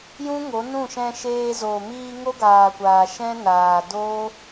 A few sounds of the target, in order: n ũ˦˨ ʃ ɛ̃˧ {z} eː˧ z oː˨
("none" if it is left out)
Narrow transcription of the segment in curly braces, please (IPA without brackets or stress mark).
ʃ